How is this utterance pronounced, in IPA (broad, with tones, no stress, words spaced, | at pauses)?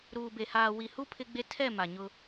ɾuː˨be˨ haː˨wi˨hu˦ pʰɪ˦ɡ͡be˦ tʰɛ˦˨ ma˨ɲʊ˦